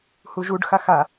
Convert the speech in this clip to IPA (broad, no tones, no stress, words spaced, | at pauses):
huʒuɖxa xa